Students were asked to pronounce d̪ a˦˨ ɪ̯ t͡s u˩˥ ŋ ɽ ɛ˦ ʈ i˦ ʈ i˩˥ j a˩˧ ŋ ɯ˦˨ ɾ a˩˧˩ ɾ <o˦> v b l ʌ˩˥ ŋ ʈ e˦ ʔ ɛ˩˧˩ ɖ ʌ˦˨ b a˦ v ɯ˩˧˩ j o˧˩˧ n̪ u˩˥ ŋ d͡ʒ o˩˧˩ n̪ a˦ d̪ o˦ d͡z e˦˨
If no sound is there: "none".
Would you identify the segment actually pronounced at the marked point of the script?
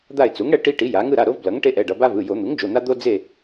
o˦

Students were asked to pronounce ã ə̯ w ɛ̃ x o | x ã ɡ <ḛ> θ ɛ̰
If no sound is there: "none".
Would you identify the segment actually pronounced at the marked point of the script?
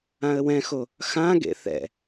ḛ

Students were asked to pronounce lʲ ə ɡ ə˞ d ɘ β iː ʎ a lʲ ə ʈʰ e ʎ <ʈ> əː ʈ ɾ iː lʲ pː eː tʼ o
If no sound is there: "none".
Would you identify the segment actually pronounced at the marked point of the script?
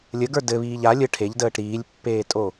d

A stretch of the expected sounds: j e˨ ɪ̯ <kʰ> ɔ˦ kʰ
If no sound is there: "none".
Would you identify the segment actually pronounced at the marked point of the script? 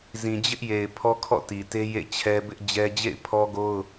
pʰ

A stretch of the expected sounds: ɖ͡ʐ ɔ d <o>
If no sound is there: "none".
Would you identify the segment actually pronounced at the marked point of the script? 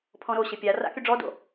o̰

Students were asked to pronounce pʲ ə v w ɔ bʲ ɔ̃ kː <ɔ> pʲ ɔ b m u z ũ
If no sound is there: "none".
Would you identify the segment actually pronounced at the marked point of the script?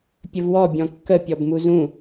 ə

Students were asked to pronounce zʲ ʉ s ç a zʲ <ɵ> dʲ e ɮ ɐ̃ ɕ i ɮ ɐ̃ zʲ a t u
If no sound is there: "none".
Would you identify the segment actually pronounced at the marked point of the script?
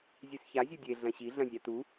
ɵ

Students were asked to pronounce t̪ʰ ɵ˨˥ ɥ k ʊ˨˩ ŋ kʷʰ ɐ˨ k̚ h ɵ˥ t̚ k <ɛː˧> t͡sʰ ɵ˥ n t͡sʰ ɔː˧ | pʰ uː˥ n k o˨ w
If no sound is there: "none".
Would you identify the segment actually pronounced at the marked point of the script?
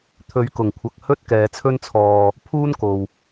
ɛː˨˧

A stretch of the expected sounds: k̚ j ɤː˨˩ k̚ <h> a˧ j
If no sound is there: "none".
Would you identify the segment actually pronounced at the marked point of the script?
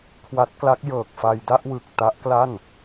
f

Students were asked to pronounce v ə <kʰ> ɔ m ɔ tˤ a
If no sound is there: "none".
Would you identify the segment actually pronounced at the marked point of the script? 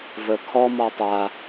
kʰ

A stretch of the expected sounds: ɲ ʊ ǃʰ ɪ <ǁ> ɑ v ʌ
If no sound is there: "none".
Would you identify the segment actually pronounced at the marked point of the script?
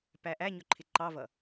ǃ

